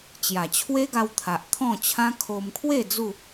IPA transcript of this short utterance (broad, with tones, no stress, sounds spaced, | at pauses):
t͡ɕ j a˨˩ t͡ɕʰ w e˦ ɡ a˧ w t̪ʰ a˨ ʔ t̪ʰ ɔ̃˥˧ t͡ɕʰ ã˦ kʰ o˧ m kʰ w e˥˧ d͡z u˥˧